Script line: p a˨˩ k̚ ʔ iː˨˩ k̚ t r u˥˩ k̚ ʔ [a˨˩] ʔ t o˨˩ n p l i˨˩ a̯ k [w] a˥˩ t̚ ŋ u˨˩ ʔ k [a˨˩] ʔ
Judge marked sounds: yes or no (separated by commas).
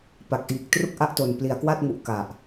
no, yes, yes